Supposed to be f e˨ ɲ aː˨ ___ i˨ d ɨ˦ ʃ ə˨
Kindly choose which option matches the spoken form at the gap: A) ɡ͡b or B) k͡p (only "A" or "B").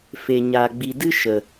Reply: A